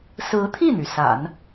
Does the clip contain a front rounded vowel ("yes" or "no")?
yes